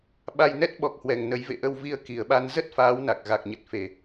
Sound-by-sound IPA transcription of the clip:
ɓ a˧ j n ɛ˦˥ t̚ ɓ ɔ˨˩ k̚ h w ɛ˨˩ ŋ n ə˨˦ j v ḛ˧˨ ʔ ə˧ w v i˧ ə̯ k i˨˩ ə̯ ɓ a˧ n z ə˦˥ t̚ f aː˨˦ w n a˨˩ k̚ ɣ a˨˩ k̚ ɲ ə˨˩ t̚ f e˨˩

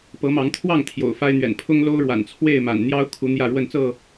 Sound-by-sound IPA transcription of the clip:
p ɤ˨˦ m ɑ˨˦ ŋ t̪ʰ w ɑ˥˨ ŋ t̪ʰ j o̰˨˩ ʊ̯ f a˦ ɪ̯ n̪ ɥ ɛ̰˨˩ n pʰ ʊ˦ ŋ l o˦ ʊ̯ ɻ w a̰˨˩ n t͡sʰ w e˥˨ ɪ̯ m a̰˨˩ n n̪ j ɑ˦ ʊ̯ kʰ u˨˦ n̪ j ä˥˨ ɻ w ə˥˨ n t͡s ɤ˥˨

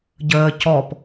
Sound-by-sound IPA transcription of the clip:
ɟ əː c ɔ p

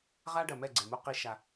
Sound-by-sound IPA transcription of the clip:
ʁ a˦ ɖ ɐ˨ m ɛ˦˨ ɡ͡ǀ e˨ m u˦ q i˦ ʃ a˧

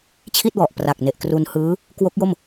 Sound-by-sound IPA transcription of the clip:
t͡ɕʰ i˥˩ t̚ w ɔ˨˩ ʔ p r a˨˩ k̚ n e˨˩ ʔ k r u˧ n h ɯː˦˥ | k w o˦˥ k̚ j o˥˩ m

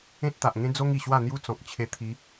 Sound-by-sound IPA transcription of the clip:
ẽ˦ t̚ t̪ a˨ ʔ ŋ ẽ˦ d͡z o˦ ŋ i˨˩ ɕ w a˥˧ n̪ j u˦ t͡s ɔ̃˨ k̚ t͡ɕʰ e˧ t̪ʰ i˨˦

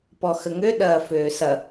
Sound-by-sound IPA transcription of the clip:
p ɔ x ə ŋ ø ɗ ɐː f øː s ɐ

